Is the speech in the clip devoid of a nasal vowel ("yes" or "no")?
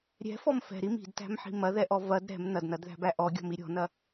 yes